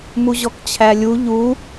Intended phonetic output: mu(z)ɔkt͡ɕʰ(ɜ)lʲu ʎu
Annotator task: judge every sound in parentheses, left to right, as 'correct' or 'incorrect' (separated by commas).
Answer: incorrect, incorrect